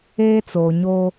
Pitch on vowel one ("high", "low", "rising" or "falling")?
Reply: high